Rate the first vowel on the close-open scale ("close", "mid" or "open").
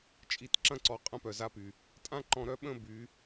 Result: close